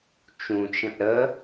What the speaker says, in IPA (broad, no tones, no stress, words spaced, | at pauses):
t͡ʃũt͡ʃə̃ʔ ɾə